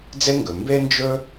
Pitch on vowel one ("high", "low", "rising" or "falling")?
high